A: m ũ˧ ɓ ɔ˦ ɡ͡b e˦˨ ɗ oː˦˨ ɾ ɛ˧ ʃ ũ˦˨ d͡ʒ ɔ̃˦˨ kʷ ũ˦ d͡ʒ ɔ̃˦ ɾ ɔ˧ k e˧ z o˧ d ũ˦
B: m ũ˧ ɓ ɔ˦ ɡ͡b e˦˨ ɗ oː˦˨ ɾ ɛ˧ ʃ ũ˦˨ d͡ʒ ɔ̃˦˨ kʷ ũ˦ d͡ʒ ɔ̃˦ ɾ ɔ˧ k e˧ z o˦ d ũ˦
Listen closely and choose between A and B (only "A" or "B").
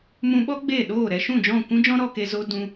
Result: B